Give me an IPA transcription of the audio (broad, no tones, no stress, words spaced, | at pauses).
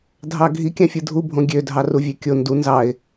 dʱɑɡʱi kʲɑ̃fʲɯdʱubʱõ ɡʲødʱɑru vʲøkʲo ndu nzɑɪ̯